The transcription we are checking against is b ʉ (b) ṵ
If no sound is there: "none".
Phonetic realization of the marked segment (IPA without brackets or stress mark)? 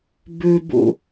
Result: b